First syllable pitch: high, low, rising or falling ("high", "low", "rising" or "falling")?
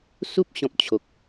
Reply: high